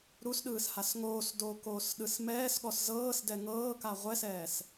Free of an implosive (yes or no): no